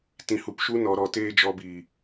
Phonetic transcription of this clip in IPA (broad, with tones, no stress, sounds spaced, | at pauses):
t ĩ˧ h u˧ p ʃ u˦ n ɔ˧ ɾ ɔ˧ t eː˦ d͡ʒ ɔ˧ b iː˨